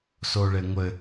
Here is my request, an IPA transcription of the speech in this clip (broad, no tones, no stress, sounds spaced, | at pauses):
s o ɭ e ŋʷ ɘ